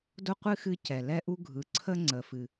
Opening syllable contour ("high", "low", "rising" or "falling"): high